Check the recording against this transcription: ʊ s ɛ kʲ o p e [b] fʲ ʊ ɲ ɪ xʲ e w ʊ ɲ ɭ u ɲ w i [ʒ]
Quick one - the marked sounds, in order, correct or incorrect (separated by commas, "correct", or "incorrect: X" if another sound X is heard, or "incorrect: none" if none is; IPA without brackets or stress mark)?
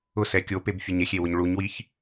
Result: correct, incorrect: ç